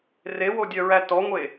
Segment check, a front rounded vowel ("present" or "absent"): present